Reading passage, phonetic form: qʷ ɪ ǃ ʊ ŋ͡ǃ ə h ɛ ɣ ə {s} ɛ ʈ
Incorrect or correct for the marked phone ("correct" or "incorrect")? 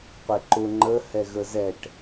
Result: incorrect